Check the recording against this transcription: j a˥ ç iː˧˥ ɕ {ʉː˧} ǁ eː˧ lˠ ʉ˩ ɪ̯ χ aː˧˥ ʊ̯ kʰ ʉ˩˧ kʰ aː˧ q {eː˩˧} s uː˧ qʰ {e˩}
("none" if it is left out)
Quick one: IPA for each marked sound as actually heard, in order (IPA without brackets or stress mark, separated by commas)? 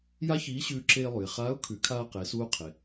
ʉː˧, eː˩˧, e˩